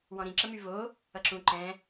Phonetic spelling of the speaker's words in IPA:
w ɔ̃ ɾ ĩ ǁ ə m y v o | ʌ ǁ ũ ǃ ɛ̃

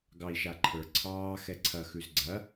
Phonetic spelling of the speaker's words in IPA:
ɡ ɑ i̯ ʃ a ǃʰ ə˞ ǀʰ ɑː x ɛ ǀʰ ɐ x ʉ z ɡ͡ǀ ɐ

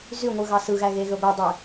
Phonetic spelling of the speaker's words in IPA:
z y ŋʷ ɯ ɣ ɑ s ɯ ɣ æ ɣ e ɣ ø ɡʷ e dˤ ø

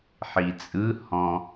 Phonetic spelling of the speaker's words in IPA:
ħ i t͡sʼ ɯ h ɔ̃

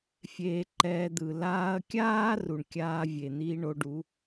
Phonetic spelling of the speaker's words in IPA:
fʲ eː˧ ǃ ɛː˧ d̪ ɯ˨ l aː˧ ɐ̯ kʲ aː˦ r u˨ ɳ kʲ aː˧ vʲ e˨ n̪ iː˧ ɳ o˧ ɖ u˨˦

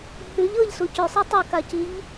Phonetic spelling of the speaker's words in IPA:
h ʉ ʎ ɤ ʎ s u c ʉ sˤ ɯ tˤ ɤ k a c i ʎ

